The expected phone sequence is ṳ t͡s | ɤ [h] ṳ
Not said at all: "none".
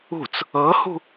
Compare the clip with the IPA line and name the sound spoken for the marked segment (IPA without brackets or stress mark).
h